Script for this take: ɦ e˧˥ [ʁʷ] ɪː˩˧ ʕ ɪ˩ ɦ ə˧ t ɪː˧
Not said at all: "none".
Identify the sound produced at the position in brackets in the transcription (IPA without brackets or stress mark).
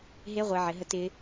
ʁʷ